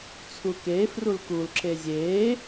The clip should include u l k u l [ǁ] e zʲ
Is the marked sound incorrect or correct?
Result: correct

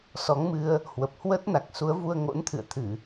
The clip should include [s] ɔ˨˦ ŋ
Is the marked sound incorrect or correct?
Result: correct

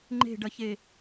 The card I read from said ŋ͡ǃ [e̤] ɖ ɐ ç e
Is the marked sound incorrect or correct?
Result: correct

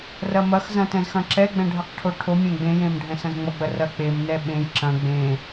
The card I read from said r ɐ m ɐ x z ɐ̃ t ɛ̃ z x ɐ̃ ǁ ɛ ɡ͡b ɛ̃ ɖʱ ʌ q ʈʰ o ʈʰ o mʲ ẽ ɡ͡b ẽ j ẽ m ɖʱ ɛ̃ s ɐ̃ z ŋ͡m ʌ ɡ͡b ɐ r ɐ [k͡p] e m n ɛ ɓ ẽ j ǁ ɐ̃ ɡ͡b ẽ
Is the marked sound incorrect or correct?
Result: correct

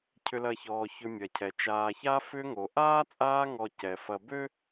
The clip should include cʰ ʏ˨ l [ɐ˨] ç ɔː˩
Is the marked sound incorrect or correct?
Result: correct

